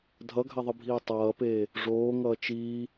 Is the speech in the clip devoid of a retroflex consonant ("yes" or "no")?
no